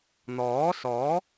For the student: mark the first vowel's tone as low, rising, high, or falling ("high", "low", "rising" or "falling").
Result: rising